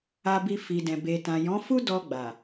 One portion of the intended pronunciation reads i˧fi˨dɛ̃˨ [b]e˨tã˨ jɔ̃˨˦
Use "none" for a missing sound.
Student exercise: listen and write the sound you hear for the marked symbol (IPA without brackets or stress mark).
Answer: b